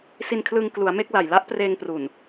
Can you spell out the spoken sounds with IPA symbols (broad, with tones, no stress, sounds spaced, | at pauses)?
s i˧ n kʰ l ɯ˧ ŋ k l u˩˦ a̯ m e˥˩ k̚ l a˨˩ j l a˦˥ ʔ p r eː˧ ŋ p r u˨˩ n